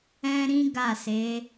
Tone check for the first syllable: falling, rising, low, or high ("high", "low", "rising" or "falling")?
high